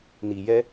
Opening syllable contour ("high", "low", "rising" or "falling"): low